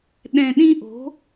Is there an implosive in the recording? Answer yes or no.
yes